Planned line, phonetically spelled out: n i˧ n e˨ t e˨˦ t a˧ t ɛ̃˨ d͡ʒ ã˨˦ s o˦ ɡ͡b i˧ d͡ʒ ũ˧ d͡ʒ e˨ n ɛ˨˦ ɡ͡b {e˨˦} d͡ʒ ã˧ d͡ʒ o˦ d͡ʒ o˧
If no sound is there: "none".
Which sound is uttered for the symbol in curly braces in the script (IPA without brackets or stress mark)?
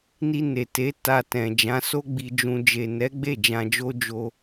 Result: e˦˨